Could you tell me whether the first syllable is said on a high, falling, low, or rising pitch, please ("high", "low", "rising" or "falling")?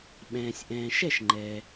low